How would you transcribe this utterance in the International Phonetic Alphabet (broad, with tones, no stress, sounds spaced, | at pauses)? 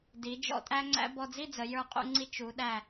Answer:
d i˩˧ d͡ʒ ɔ̰˧ tʼ æ˥ ŋ͡ǀ æ̰˥ b ɔ˧ d͡z i˥˧ d͡z ə˩˧ j ə˞˧˩ qʼ ṵ˧ ŋ͡ǀ i˧ t͡ʃ u˩˧ ɗ æ˧˩